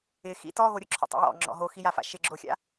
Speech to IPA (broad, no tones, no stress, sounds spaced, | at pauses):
ɪ x ḭ t ɔ ɣ o ɾʲ ʊ ǁʰ ɔ̰ tˤ a̰ j ɔ̰ ŋ͡ǁ ɔ̰ ɦ o x i j a f a̰ ʃ ɪ ɡ͡ǁ o xʲ a̰